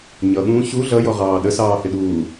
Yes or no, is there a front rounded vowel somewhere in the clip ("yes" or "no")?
no